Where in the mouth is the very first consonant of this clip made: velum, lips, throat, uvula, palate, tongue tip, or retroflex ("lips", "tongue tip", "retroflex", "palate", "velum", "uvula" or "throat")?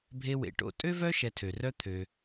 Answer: lips